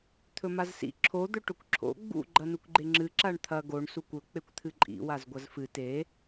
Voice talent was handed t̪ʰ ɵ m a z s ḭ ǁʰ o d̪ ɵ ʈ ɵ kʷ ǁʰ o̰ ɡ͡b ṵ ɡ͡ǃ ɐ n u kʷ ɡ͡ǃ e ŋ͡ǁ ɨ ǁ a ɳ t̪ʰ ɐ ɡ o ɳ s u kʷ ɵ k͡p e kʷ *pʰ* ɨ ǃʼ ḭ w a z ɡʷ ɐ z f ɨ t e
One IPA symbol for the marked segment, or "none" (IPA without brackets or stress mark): t̪ʰ